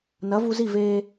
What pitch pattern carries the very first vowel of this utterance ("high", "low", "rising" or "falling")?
rising